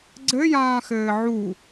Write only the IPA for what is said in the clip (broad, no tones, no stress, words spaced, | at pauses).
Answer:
ɡ͡ǀɘjãːxɘː ʕu